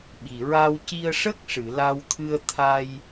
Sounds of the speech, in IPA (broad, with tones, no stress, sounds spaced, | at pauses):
ɓ i˨˩ ɹ a˧ w c i˧ ə̯ ʂ ə˦˥ k̚ ʂ ɨ˨˩˨ l a˧ w t̪ʰ ɨ˧ ə̯ t̪ʰ a˧ j